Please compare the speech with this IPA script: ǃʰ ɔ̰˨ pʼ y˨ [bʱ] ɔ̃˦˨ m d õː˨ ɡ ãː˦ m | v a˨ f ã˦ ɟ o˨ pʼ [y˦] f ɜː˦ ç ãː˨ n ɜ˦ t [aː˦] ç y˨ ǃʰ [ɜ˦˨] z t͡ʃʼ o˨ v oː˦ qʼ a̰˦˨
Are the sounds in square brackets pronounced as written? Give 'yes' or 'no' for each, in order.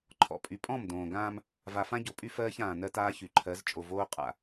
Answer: no, yes, yes, no

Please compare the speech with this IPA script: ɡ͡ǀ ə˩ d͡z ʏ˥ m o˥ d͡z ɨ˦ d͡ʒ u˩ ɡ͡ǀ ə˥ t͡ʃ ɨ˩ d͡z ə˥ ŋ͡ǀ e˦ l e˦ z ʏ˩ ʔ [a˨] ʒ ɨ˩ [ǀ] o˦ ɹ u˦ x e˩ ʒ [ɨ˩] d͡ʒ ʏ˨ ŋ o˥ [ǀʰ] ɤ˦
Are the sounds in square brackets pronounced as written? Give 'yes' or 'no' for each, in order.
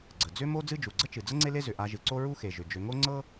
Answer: yes, yes, no, no

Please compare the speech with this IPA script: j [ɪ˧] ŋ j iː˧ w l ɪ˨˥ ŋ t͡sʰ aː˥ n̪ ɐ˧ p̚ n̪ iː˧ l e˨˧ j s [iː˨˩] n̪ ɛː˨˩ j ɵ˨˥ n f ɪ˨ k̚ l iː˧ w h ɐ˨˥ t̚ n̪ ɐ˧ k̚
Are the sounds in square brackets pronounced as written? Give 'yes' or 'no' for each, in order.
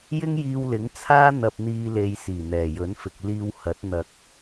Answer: no, yes

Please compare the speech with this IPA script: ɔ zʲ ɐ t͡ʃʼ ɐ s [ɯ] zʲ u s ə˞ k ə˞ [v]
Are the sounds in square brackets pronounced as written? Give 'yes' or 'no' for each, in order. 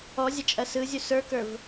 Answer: yes, yes

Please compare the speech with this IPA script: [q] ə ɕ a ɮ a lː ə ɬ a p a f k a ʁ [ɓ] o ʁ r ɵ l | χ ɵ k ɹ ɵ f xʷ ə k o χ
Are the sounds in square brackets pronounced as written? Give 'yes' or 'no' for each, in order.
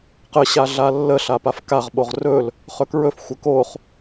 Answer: yes, yes

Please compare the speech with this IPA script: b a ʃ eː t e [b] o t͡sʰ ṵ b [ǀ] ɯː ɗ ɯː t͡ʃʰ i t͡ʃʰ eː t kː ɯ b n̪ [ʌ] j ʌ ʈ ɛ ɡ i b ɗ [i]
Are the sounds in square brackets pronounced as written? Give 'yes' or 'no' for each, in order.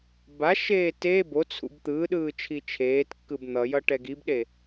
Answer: yes, no, yes, no

